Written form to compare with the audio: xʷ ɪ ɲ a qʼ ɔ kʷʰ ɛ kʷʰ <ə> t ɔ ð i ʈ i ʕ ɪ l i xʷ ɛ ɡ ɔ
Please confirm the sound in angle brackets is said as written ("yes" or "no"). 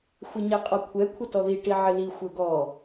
yes